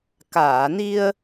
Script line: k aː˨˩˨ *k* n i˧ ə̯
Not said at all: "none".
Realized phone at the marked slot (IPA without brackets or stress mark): none